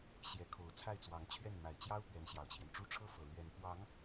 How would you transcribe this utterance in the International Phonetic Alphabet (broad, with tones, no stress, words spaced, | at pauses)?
ɕjɛ˧˥kʰo˧˥ʊ̯t͡sʰa˥˩ɪ̯t͡swɑ˧˥ŋ t͡ɕʰɥɛ˥˩n ma˨˩ɪ̯t͡ɕjɑ˥ʊ̯ pɥɛ˧˥nɕjɑ˨˩ʊ̯t͡ɕʰjɛ˦nʈ͡ʂu˥ ʈ͡ʂʰɤ˥fɤ˨˩ lɥɛ˧˥n pwɑ˧˥ŋ